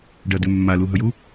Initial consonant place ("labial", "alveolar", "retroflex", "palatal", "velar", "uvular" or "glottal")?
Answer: retroflex